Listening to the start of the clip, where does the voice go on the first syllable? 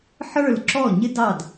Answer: falling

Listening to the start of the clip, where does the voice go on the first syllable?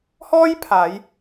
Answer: high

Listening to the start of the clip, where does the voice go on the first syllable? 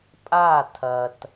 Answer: falling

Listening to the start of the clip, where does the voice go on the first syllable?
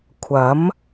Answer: rising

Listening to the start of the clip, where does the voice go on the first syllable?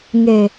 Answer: low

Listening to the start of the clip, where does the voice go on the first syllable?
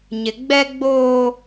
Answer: low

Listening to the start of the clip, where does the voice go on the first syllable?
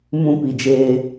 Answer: high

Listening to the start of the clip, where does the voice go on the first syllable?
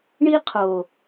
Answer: high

